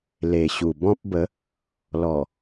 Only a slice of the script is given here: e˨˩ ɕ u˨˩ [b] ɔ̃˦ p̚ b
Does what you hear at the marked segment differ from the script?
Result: no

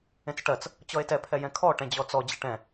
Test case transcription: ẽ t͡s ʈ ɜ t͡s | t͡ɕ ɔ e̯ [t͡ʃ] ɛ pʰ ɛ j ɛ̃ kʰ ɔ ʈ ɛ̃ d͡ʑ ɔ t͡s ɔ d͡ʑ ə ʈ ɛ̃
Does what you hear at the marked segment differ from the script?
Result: yes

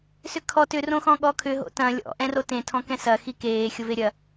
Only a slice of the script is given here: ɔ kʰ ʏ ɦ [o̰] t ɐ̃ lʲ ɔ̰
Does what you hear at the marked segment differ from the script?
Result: no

